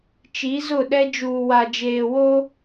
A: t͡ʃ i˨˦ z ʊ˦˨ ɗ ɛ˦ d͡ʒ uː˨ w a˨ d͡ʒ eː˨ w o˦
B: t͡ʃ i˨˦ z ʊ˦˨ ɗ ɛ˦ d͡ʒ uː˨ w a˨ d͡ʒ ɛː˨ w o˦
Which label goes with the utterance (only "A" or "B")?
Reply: A